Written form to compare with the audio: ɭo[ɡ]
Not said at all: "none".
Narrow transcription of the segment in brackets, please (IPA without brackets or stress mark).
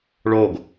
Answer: ɡ